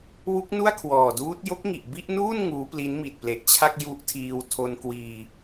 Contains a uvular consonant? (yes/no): no